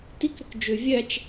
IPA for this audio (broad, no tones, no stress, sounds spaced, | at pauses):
t i k ɾ ʏ k d͡ʒ ʏ vʲ æ t͡ʃ